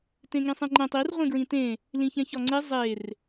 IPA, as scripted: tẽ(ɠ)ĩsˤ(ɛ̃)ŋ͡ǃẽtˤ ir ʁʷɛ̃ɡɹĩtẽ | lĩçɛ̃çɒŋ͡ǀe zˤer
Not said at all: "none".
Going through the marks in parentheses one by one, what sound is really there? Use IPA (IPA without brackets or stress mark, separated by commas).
ŋ, ẽ